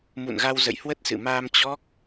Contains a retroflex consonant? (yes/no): no